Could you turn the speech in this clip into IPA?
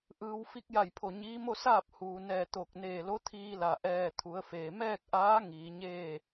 ʔ ɯː˧ w f i˧˥ k̚ j a˧˩ j pʰ o˧˩ ɲ iː˧˥ m o˥˨ s aː˥˨ p̚ h uː˩ n ɛː˧˩ t̪ o˧˩ k̚ n eː˧˩ l o˧˥ t̪ʰ iː˧ l a˩ ʔ ɛː˧˩ t̪ʰ u˩˧ ə̯ f eː˩ m ɛː˥˨ k̚ ʔ aː˧˥ ŋ iː˩˧ ɲ eː˥˨

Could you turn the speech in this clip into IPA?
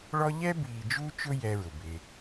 ɭ ɔ˦ ʎ ɛ˦ b iː˨ d͡ʒ u˦ t͡ʃ ʊ˦ j ɛ˦ ɹ ʊ˨ b ɪː˦

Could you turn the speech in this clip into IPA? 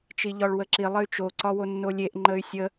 t͡ʃ i ʎ ɒ ɭ w ə ǁ i lˠ ə y̯ t͡ʃ o ǀ ɒ w o nː o lʲ e ʔ ŋ͡ǃ ə y̯ sʲ ə

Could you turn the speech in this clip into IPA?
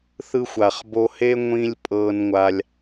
θ ɯ˦ xʷ a˨ χ b o˧ h e˦ ŋʷ ĩ˦ lʲ pʼ ɤː˧ n ŋʷ a˧ lʲ

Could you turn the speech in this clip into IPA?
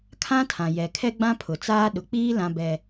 kʰ ã˦ tʰ ã˨ j ɛ˨ kʰ ɛ˦ ɡ͡b ã˦ pʰ ʊ˨ t͡s aː˦ ɗ ʊ˨ k͡p iː˦ l ã˦ b ɛ˦

